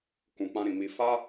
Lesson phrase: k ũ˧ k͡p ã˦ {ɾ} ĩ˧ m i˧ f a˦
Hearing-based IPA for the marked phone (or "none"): ɾ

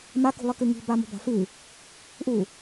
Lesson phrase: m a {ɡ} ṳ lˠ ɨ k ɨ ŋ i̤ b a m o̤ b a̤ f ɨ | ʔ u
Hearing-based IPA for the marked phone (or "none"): k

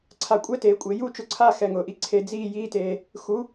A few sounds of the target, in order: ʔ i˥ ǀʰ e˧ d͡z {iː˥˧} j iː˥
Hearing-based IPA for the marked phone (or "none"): iː˥˧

